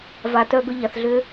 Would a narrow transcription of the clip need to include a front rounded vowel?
yes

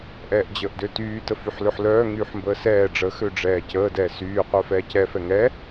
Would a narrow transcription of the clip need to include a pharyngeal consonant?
yes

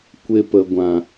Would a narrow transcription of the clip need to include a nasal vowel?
yes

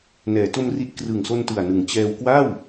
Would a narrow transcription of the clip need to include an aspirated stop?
no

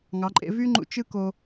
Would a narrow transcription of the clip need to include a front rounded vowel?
yes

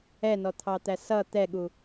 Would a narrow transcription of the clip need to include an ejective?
no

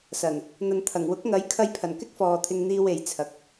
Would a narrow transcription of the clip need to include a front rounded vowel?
no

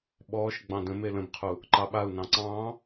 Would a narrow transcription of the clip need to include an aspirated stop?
yes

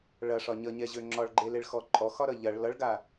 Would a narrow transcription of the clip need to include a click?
yes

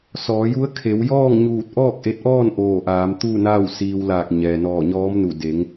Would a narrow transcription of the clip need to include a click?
no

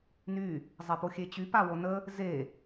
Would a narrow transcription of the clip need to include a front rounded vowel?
yes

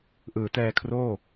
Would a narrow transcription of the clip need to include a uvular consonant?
no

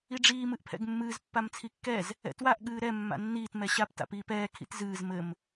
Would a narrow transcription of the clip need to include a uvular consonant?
no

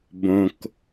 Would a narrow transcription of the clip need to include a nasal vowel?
yes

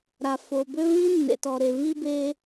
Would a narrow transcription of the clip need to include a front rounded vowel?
yes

